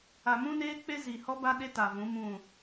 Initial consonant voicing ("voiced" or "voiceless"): voiced